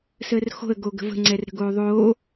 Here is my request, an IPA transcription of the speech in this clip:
səːrxo̤ə̯ ɡoɡə̤və̤ ŋ͡ǀɛrɾə̤ɡoːðˤoː

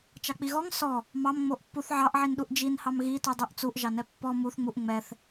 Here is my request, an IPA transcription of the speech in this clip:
t͡ʃɑk͡piɣɔŋ sɔ | mɑmŋ͡moʔ pːuθ ʕɑʔʕinɗuʔ d͡ʒinhɑm ɣitudˤuʔ t͡suʔʒɑnɛ pːɔ muθŋ͡muʔ ŋ͡mɛθ

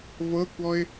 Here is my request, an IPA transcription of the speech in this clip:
vɤkʷɔɪ̯

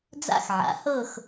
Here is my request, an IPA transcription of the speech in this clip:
d͡za̰˦˨xʕa̰˩˥ hɤ˦˨x

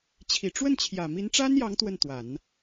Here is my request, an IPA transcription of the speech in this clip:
t͡ɕʰi˨˩ʈ͡ʂwə˥˩nt͡ɕʰjä˨˩ mi˧˥nʈ͡ʂa˥njɑ˧˥ŋ t̪wə˥˩nt̪wa˨˩˦n

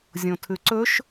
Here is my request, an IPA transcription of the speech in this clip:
zʲõtʰʉǀɵʃ

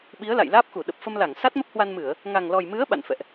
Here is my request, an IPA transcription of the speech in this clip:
ɓi˨˦ə̯la̰˧˨jlaː˦˥p̚xu˧˩ ɗə˨˩p̚fə˧mla˧˩ŋ sa˦˥t̚mə˦˥p̚hwa˧nmɨ˧˩˨ə̯ | ŋa˨˩ŋlɔ˨˩jmɨ˨˦ə̯ ɓa̰˧˨nfɛ̰˧˨ʔ

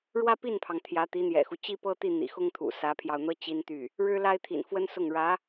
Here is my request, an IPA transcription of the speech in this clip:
ɻwä˥pi˥˩npʰɑ˩ŋ t̪ʰjä˧˥t̪i˧˥n̪jɛ̰˨˩xu˦ t͡ɕi˥pɤ˥t̪i˥˩ n̪ḭ˨˩xʊ˥ŋt̪ʰṵ˨˩ sä˧˥pʰjɑ˧ʊ̯n̪ɤ˥ t͡ɕi˥nt̪y˥˩ | ɻɻ̩˥la˥ɪ̯ t̪ʰḭ˨˩nfwə˥nsʊ˥˩ŋ ɻä˧˥

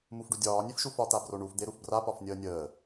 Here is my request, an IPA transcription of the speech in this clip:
mufɖudʲɒː nʲefʃufɒ t̪abroɳuf d̪eɾufbra pɒfnʲəːnʲəː

